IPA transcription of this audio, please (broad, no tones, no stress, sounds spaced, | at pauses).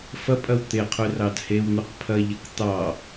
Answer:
f ɐ pʼ ɐ w t̪ e qʰ ʉ r ɑ d h e w n̪ ʉ q pʰ ɐ ʎ ɐ k t̪ ɑ